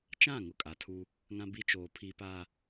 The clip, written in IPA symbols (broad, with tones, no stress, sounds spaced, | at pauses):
t͡ʃ ã˦˨ ŋ ʊ˦ kʼ a˨ tʰ u˦ | ŋ ã˦ b i˦ t͡ʃ oː˨ pʰ i˨ p a˨